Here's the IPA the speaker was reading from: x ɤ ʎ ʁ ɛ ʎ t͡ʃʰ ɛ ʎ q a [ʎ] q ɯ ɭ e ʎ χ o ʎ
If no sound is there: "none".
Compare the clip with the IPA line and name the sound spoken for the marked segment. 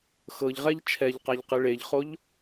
ʎ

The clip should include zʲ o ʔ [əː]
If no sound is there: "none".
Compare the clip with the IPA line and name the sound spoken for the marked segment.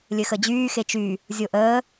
əː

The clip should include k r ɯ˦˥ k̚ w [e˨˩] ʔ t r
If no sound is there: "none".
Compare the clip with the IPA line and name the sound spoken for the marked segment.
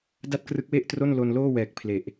e˥˩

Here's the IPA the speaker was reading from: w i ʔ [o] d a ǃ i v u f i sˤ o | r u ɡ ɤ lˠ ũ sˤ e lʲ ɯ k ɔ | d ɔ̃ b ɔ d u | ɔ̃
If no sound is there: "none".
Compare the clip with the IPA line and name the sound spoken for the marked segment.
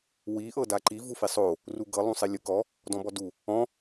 ɤ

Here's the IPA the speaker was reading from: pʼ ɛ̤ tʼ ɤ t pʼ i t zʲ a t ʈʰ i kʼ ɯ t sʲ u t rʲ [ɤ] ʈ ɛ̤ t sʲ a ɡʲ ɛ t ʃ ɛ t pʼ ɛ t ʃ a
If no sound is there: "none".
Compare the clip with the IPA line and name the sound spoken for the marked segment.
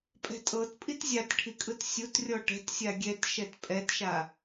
ɔ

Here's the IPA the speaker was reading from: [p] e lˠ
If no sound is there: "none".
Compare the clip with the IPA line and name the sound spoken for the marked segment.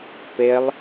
p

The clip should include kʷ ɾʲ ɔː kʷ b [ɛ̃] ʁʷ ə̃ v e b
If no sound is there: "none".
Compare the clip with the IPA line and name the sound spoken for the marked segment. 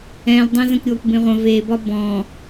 ẽ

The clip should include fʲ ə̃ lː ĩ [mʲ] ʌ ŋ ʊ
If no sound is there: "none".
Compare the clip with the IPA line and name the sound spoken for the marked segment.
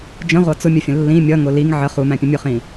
mʲ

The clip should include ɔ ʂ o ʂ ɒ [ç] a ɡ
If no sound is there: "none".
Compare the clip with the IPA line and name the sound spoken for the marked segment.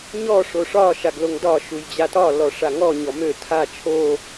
ʃ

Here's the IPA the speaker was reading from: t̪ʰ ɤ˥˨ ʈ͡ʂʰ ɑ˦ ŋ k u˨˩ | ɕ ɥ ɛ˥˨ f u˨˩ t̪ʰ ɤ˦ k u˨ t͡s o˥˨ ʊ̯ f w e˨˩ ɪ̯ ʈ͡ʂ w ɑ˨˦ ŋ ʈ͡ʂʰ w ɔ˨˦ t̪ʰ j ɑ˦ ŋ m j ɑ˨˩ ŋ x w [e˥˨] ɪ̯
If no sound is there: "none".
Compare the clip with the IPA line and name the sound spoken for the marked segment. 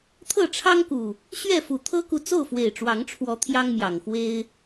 e˦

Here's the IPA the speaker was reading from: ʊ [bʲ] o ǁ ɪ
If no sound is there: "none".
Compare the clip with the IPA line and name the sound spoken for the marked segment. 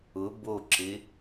b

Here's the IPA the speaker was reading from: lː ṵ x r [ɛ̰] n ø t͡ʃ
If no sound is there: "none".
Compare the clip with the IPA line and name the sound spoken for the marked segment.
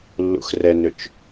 ɛ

